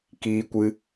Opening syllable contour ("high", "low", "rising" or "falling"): high